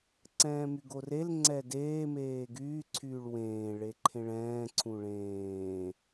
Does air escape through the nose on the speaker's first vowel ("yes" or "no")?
yes